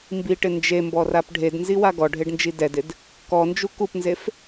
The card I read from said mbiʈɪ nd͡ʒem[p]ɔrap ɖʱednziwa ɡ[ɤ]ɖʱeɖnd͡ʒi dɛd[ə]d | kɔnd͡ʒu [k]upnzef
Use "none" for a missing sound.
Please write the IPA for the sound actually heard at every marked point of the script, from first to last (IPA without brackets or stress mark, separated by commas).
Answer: b, ɔ, ɪ, k